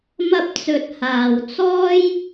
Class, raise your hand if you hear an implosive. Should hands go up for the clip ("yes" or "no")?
no